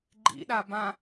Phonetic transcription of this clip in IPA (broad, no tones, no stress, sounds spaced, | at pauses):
ɡ͡ǃ ḭ ɗ a b ã